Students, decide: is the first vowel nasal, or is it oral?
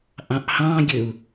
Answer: nasal